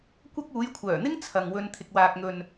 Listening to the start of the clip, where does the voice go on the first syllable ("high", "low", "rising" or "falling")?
high